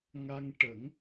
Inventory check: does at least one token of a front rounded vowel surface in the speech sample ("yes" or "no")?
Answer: no